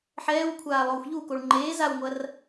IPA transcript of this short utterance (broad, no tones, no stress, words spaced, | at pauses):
ħɛːwkʷʰaː lˠoːxʷʎukoɭ ŋ͡ǃeː zawŋʷɐr